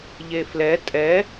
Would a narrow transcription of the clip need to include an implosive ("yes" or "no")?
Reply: no